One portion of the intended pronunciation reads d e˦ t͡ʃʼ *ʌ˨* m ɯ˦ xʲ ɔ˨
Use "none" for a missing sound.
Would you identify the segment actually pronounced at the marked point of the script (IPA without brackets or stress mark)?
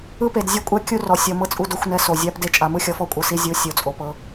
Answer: a˨